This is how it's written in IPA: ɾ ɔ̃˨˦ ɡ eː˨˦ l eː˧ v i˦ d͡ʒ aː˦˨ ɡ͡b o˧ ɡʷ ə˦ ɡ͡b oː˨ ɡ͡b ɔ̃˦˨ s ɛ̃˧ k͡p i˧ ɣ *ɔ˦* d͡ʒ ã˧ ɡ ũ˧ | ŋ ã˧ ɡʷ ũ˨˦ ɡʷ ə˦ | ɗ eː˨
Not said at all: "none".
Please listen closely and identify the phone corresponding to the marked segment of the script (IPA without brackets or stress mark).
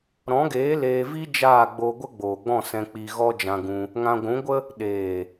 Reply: ɔ˦